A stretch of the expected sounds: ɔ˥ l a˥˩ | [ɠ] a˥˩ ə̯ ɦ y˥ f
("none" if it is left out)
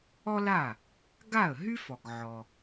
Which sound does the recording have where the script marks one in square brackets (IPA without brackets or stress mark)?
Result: ɡ